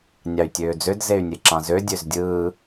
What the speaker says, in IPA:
nʲ ɑ y̯ tʲ øː d͡z ø d z e y̯ nʲ e ǁ ɑ̃ z ø dʲ ø z dʲ ɯː

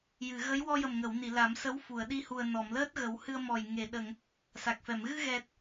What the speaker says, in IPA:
j ɨ˨˩˨ ɣ ə˧˥ j w ɔ˧ j ə˨˩ m ŋ ə˨˩˨ w n i˨˩˨ l a˨˩˦ m s ə˧˥ w f u˨˩˨ ə̯ ɗ i˧ h u˨˩ ə̯ n ɔ˨˩˨ m l əː˦˥ t̚ ɣ ə˨˩˦ w h ɨ˧ ə̯ m ɔ˨˩ j ŋ e˨˩˨ ɗ ə˨˩˨ ŋ | s a˨˩ k̚ f ɛ˨˩˨ m ɣ ɨ˧ ɣ ɛ˨˩ t̚

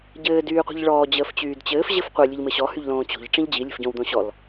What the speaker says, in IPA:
ɟ ɘː d yː qʷ i̤ ʎ ɭ ɔː d͡ʑ əː f t͡ɕ yː d t͡ɕ ɘː f ʑ ɘ f qʷ ə lʲ ɘ ʎ m ɘ ɕ ɔ h y ʎ l õː t͡ɕ o̤ ʎ ʈ͡ʂ ĩ ʎ d͡ʑ i lʲ ə̤ f ɟ õ w d̪ õ ɕ ɔ l

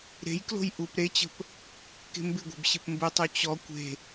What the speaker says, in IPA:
ɾ e̤ j k l o̤ j ʔ u p ɾ e t͡ɕ ə̤ p | k e̤ m b ɪ ɡʷ e̤ b ɕ ɪ p m b ɘ tˤ o t͡ɕ ɔ kʷ e̤

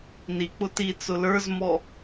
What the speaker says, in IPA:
n i k͡p ʊ t i t͡s ʊ l ə˞ z m ɔ

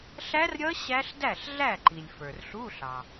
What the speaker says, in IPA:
ɬ æ˦˥ r ɾʲ ʌ˦˥ ɕ æ˦˥ ɬ d æ˥˩ ɬ ɮ æ˥˩ ǃ i˩ lʲ f ə˞˩ r ɬ u˧˥˧ ɬ ɑ˩

